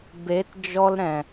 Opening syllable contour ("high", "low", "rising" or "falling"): rising